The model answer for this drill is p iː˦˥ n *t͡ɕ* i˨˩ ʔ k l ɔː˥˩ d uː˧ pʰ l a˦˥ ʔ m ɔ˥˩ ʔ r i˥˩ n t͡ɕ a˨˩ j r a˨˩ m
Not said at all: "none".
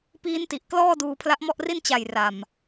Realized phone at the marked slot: t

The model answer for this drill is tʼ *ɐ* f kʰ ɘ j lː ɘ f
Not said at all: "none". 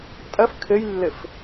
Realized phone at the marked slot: ɐ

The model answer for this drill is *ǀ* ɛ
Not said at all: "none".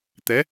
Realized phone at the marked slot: t̪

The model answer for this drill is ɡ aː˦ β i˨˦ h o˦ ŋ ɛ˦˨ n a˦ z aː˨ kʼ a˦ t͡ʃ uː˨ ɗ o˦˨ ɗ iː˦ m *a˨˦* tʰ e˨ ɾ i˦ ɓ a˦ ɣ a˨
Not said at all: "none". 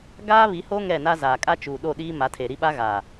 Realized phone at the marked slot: a˨˦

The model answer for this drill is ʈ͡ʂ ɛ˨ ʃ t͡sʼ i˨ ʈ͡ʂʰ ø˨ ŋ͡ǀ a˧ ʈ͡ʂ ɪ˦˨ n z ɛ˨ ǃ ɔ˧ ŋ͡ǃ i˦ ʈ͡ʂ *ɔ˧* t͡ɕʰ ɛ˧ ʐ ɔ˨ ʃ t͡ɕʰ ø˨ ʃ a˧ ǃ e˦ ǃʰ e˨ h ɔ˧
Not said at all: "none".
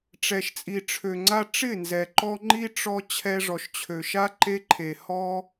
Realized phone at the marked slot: ɔ˧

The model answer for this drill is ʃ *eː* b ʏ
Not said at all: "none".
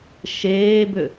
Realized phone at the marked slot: eː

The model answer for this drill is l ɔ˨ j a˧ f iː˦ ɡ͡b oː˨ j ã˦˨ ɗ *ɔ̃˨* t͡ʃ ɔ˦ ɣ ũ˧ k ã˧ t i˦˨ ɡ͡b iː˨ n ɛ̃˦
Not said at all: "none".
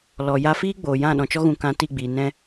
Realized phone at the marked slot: ɔ̃˨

